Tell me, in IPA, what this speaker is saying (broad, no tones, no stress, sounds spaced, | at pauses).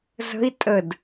z ə̤ i̯ tʼ ə d